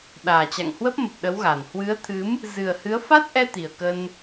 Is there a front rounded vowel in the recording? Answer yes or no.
no